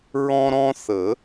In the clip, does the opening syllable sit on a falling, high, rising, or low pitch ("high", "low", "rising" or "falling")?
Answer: high